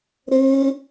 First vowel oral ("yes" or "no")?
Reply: yes